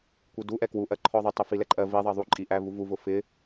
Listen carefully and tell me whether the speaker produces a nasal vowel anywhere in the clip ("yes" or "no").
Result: no